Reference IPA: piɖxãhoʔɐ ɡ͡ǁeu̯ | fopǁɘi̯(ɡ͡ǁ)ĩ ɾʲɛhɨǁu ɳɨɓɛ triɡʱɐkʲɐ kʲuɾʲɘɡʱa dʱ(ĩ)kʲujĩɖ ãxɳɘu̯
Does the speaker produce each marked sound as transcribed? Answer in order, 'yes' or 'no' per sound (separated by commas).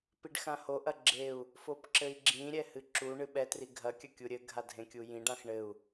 yes, no